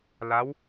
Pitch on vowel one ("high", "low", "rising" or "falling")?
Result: rising